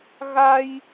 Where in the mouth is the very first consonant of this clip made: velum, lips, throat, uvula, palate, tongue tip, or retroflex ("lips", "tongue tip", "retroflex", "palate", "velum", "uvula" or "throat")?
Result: velum